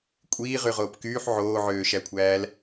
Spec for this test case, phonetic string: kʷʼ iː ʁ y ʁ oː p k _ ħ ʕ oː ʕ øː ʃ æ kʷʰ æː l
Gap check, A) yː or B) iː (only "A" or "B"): A